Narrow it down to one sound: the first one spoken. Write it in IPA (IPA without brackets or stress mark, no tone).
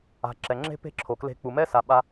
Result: a̤